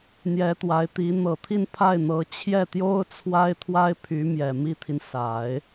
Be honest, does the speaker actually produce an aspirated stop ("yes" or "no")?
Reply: yes